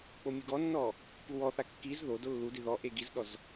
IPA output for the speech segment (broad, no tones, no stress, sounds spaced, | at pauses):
k͡p o mʲ u ɡ ɔ nː ɔ | p u w ɔ θ a kː i z ð o d o lː u d i ð ɔ ʔ e ɡ i z ɗ ɔ z